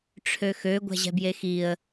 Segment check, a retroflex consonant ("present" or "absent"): present